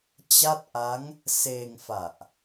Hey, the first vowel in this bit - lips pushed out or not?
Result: no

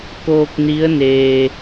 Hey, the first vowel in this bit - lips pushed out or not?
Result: yes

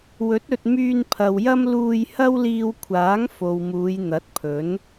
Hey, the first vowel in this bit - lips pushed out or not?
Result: yes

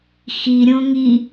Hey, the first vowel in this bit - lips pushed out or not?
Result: no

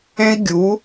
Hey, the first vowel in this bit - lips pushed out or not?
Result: no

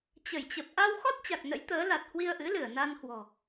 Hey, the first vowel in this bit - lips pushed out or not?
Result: no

